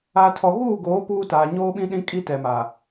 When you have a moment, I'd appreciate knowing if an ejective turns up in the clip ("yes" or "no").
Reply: yes